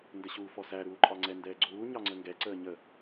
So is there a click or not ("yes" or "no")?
yes